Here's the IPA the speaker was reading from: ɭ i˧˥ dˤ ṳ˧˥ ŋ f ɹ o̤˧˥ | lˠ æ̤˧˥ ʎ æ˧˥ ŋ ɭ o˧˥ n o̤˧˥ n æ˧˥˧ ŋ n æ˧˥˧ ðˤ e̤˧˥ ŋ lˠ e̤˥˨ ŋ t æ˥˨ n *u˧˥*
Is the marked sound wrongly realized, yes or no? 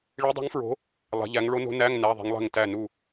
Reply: yes